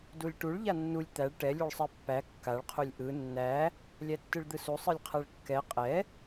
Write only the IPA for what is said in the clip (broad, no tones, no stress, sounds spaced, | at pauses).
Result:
d u lʲ ʈ u ɭ ʎ a nː u lʲ t̪ æ ɭ ʈ ɛ lʲ u ɭ sˤ ɛ pː æ kː a ɭ qʰ u lʲ ʔ ɯ nː æ | lʲ æ tː ɯ ɭ d̪ ɯ s u sˤ ɯ lʲ qʰ æ ɭ kː ɛ qʼ ɛ